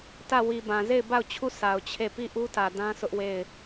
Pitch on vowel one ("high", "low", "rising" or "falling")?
falling